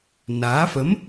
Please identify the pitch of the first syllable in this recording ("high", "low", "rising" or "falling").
rising